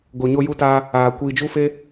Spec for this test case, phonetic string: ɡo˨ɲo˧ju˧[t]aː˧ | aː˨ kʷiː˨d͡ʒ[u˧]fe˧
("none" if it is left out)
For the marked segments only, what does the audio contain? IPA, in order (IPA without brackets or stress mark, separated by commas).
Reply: t, u˧